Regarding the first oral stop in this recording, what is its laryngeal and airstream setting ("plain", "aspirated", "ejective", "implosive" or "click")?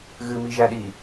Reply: implosive